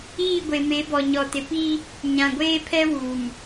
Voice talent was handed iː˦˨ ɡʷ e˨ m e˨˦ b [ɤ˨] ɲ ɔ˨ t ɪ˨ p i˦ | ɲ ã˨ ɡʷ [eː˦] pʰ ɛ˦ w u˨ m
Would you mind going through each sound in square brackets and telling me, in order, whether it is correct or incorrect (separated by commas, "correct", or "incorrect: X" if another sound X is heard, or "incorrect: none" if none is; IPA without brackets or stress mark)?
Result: incorrect: ɔ˨, correct